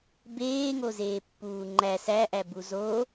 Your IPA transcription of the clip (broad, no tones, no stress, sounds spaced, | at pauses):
b eː ŋ o z eː pː uː ŋ͡ǃ æ s æ ʔ æ b u z o